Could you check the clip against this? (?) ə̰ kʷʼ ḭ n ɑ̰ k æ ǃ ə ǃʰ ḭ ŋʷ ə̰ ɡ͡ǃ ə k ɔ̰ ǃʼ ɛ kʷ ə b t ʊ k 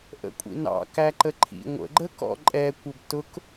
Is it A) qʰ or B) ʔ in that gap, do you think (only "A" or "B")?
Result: B